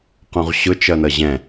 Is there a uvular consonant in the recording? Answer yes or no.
yes